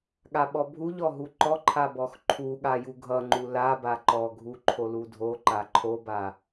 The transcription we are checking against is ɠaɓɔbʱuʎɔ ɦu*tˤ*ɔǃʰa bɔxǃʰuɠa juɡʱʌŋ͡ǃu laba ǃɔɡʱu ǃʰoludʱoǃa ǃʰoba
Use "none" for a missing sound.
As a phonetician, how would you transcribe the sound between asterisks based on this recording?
ǃ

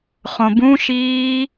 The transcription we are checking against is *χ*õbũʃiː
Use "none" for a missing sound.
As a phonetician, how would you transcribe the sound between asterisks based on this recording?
χ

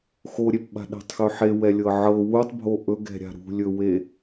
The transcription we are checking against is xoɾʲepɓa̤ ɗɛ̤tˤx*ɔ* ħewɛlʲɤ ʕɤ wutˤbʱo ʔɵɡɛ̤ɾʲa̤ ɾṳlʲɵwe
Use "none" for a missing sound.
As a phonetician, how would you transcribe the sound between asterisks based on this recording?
ɵ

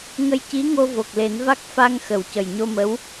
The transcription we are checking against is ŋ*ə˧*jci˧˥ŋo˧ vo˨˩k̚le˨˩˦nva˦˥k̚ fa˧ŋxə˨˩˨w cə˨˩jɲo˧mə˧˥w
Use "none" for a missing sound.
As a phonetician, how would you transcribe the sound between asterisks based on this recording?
ə˧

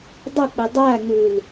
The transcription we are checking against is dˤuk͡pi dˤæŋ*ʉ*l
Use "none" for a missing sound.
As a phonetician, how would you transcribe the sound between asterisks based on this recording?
ʉ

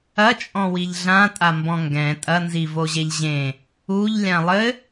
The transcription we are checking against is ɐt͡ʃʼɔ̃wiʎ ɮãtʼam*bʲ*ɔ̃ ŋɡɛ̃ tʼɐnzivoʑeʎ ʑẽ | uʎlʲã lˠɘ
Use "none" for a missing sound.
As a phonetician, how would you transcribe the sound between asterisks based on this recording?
b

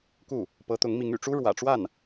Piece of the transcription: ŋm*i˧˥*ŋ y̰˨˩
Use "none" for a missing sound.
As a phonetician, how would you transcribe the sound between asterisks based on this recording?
i˧˥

